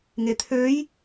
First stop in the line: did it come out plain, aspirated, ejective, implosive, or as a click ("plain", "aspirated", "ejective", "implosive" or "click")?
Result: aspirated